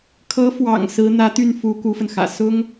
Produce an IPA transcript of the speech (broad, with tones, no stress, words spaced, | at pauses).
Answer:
kʰɤ˧˥fwɑ̰˨˩ŋ sɹ̩˧˥n̪ä˧˥t̪y˥˩n fu˧˥ ku˧˥fə˧nxä̰˨˩ sʊ˥ŋ